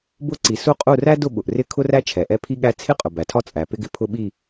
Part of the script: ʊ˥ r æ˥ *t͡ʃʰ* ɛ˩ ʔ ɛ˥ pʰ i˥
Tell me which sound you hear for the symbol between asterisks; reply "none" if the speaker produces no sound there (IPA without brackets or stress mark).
t͡ʃʰ